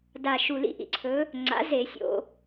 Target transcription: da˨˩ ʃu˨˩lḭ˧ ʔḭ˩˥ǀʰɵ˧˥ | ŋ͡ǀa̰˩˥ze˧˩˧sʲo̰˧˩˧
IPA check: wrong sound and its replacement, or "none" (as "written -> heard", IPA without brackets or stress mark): none